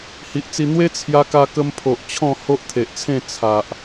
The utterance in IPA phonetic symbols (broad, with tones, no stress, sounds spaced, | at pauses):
h i˨ ʔ t͡s i˧ n̪ w e˦ t͡sʰ j a˧ k a˧ k ə˧ m pʰ o˨ ʔ t͡ɕʰ ɔ̃˥˧ h o˦ ʔ t̪ʰ e˨ ʔ t͡sʰ ẽ˥˧ t͡sʰ a˨ ʔ